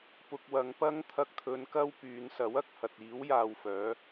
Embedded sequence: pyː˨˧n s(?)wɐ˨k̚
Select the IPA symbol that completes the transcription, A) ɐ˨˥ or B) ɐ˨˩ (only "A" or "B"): A